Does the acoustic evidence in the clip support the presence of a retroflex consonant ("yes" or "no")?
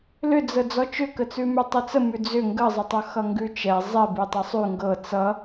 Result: no